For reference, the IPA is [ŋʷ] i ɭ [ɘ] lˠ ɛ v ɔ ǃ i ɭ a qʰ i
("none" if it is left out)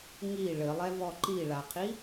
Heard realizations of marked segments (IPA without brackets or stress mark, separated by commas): ŋ, ɘ